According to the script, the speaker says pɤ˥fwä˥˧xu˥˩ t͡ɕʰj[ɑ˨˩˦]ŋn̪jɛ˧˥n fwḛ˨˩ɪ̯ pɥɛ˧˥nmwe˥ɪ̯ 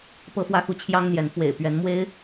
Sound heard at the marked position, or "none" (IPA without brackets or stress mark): ɑ˥